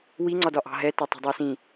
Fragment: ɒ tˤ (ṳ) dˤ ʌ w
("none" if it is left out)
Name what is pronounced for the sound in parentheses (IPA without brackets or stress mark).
ṳ